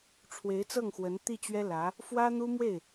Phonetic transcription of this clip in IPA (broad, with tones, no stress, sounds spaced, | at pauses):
ʈ͡ʂʰ w e˧˥ ɪ̯ t͡s ɤ˥˩ ŋ x w ə˧˥ n t̪ i˥˩ t͡ɕ ɥ ɛ˥ l ä˧˥ | f w ä˥ n̪ u˥ m w e˥˩ ɪ̯